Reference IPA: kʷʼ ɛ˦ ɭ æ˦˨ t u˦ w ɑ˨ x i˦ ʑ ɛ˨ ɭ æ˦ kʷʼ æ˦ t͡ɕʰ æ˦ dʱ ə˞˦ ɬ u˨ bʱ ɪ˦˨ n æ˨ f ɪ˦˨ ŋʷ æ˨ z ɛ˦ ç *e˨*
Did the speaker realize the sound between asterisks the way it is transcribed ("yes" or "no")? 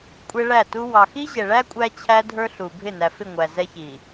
no